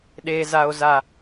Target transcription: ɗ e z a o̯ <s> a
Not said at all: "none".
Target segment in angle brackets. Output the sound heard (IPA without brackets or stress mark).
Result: z